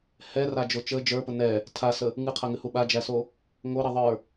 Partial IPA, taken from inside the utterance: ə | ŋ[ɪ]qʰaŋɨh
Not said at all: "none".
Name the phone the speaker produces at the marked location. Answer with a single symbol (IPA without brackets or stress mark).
ɨ